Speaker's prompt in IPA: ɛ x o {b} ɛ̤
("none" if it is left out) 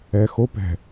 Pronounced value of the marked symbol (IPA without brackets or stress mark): p